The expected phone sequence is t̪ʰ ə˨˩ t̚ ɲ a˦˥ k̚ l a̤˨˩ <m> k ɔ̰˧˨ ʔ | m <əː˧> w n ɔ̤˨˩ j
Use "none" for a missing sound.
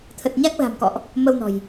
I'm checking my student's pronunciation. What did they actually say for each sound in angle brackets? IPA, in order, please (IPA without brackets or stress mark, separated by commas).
m, ə˧